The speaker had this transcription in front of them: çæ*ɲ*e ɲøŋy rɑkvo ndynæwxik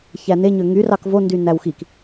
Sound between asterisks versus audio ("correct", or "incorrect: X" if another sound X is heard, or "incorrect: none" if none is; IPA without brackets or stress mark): incorrect: n